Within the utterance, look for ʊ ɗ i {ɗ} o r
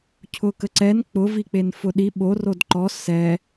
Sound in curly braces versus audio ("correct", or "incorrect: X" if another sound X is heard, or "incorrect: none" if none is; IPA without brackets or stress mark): incorrect: ɓ